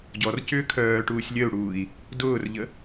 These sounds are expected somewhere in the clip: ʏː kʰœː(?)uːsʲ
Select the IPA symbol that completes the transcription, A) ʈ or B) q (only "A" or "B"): A